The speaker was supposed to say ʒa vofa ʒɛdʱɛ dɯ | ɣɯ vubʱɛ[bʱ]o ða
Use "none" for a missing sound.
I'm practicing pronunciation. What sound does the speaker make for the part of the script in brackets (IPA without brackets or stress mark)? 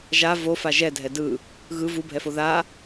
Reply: f